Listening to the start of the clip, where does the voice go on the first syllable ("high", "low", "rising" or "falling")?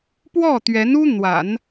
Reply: falling